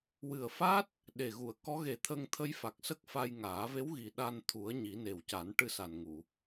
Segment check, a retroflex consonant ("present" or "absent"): present